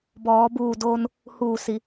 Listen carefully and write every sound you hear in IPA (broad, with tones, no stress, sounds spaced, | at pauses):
b ɔː˩˧ b uː˧˩ d oː˧ n | h uː˧˩ s i˩˧